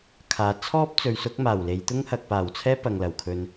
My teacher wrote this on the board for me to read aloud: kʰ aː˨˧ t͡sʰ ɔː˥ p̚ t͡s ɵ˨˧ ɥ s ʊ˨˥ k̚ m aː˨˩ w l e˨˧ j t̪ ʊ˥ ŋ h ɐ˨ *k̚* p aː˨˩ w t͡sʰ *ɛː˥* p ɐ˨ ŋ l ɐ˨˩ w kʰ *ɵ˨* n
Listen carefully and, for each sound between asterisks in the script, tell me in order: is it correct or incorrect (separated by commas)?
correct, correct, incorrect